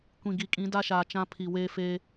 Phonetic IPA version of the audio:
kʷ ĩ˨ ɡ i˨ kʼ ĩ˨˦ d a˦ ʃ aː˨ t͡ʃ ã˦ pʰ i˨ w eː˦ f eː˦

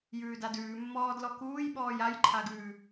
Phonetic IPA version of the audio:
j ʉː d a d ʉː mː ɔː d l ɔ k uː j ɓ ɔː j a j ǃʰ a ɡ ʉ

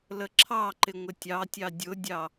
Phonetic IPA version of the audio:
l ə ǁʰ ɑ ǃ ɪ ŋʷ ɪ tʲ ɑ tʲ ɑ dʲ ʊ dʲ ɑ

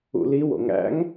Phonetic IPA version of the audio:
ṵ l i w o̰ ŋ æ̰ ŋ

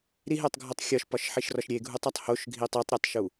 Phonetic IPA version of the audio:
ɾ i ɦ e tˤ ɡʱ o tˤ xʲ ɒ ʃ p ɒ ʃ ħ i ʃ r ɒ ʃ ɾʲ e ɡʱ u tˤ ɒ tˤ h o ʃ ɡʱ i tˤ i tˤ ɾʲ o tˤ ʃ u

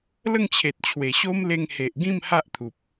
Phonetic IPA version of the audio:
l ə˥˧ ŋ t͡ɕʰ e˨ t̚ t͡ɕʰ w e˨˩ ɕ o˦ m l e˧ ŋ h e˨ ʔ ɡ ĩ˥˧ m h a˦ ʔ t̪ʰ u˨ p̚

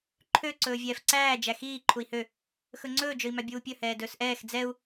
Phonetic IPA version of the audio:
ǃʰ ø ǀ ɵː vʲ ɛː f ǀ æː d͡ʒ æ x iː ǃʰ u i̯ h ø | x ɵ ŋ͡ǀ ɵː d͡ʒ ɵ i̯ m æ bʲ uː pʲ ɵ h ɛː d ɵː s ʔ ɛː x d͡z ɛ u̯

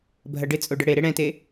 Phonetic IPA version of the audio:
bʱ ɐ ɖ ɪ t͡sʼ o ɖ ə ɽ e ɾ e ɽ ɛ̃ t e

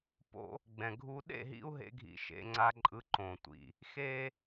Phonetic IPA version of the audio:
p o̰˧ | ɡ͡b ɛ̃˨ ɡʱ u˧ ɗ ḛ˦˨ ɦ ḭ˧ u̯ ɦ ḛ˧ ɡʱ ḭ˧ ʃ ḛ˧ ŋ͡ǀ a˧ ǃʼ ɯ˧ ǃ õ˨ tʷ ḭ˨ | x e˦

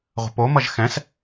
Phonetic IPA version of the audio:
ʁʷ ə̤ p o m ʌ ʒ x ɛ̃ s

